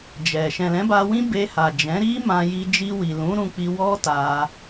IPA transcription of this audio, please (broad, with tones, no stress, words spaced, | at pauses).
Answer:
d͡ʒɛ˨ ʃɛ̃˨lɛ̃˨˦ba˧wĩ˦ be˧ha˨ d͡ʒɛ̃˨˦ɾi˦ mã˧ji˧ d͡ʒi˧wi˨ lũ˨˦ɾũ˧ k͡pi˧wɔ˦ta˧